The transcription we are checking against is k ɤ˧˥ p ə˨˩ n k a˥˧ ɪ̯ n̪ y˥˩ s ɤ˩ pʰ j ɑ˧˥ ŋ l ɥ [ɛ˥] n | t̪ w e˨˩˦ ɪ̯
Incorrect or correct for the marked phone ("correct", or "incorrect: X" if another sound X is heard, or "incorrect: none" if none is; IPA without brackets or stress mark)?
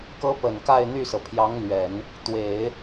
incorrect: ɛ˨˩˦